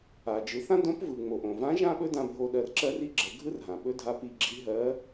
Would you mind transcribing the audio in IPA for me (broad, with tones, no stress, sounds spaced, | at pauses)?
a˩ d͡ʒ ɯ˩˧ θ ã˥ d õ˧˥ p v ɯ˩ ŋ͡m o˩ ʔ õ˩ v ã˧˥ ʒ ã˥ ɓ ɵ˥ d ã˧ bʱ o˧ ɗ ɜ˧ r ǁ ɜ˥ r i˥ ɡ͡ǁ ɜ˩˧ ɡʱ ɯ˥ r ɦ ã˩ ɓ ɵ˥ dʱ a˧˥ p i˧ ɡ͡ǁ i˧˥ ɦ ɜ˧˥